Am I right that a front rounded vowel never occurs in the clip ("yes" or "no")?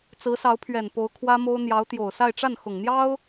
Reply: yes